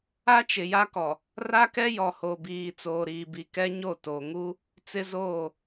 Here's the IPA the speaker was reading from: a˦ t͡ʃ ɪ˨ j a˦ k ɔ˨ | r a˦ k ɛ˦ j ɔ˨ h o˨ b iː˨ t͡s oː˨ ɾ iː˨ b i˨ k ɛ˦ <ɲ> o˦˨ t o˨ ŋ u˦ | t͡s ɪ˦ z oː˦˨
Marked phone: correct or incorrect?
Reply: correct